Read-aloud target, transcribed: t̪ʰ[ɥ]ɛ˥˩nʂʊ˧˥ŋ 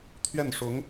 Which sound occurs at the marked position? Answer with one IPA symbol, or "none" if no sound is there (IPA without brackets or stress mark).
ɥ